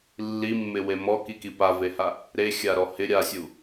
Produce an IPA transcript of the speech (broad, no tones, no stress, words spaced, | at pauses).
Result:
lːimːɪwe mɔkiki paveha | ɾexʲaɾɔ hɪ ɾʲasʲu